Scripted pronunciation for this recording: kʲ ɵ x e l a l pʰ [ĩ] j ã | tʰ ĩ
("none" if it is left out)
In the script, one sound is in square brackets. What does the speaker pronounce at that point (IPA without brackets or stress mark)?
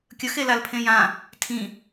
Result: ẽ